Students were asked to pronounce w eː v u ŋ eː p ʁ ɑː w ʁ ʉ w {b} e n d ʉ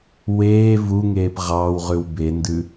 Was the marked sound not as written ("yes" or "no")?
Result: no